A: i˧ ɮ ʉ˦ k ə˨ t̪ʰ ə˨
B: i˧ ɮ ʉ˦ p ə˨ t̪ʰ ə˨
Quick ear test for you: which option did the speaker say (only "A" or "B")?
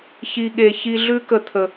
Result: A